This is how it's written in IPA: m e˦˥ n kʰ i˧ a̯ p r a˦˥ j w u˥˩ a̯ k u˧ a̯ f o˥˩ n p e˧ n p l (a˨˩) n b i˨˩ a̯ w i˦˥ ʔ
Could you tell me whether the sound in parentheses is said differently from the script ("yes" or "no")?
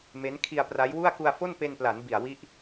yes